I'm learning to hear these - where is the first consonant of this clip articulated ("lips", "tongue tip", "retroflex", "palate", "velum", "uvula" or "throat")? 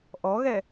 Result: throat